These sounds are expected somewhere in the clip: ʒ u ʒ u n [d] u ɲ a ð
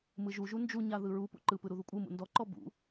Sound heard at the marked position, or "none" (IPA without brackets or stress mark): d͡ʒ